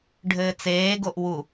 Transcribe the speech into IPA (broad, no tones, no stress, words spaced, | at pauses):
ɖʱɘːt͡seːɡoʔ wu